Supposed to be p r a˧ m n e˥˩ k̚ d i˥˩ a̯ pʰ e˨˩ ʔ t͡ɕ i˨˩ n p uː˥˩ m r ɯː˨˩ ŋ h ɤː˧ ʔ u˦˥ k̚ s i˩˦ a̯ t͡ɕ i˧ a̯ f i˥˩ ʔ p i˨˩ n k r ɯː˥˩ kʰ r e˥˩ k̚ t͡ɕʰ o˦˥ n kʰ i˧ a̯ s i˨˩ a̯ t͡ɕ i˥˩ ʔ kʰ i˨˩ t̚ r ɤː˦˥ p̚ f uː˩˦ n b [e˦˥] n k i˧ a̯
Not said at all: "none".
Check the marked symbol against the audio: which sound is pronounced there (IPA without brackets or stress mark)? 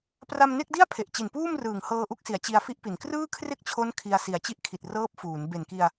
e˨˩